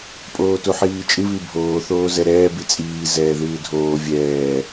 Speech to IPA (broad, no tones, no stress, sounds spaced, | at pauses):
pʼ oː t u ħ iː t͡ʃʼ ɨ β i bʱ oː θ oː z ɛ ɾ ɛː b i t͡sʼ iː z ɛː ð ɨː dʱ oː vʲ ɛː